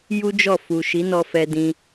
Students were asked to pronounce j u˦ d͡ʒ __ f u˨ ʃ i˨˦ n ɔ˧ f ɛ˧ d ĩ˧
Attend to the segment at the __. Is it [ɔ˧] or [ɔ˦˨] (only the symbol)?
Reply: ɔ˦˨